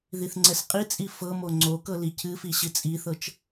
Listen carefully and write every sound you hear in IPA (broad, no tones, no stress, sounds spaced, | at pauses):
ð i θ ŋ͡ǀ ɛ s qʼ i t͡sʼ i f ɤ m o ŋ͡ǀ o k ɤ l i cʰ ɨ f i ɕ ɨ t͡sʼ i θ ɤ t͡ʃ